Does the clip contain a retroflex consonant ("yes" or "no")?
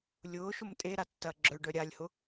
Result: yes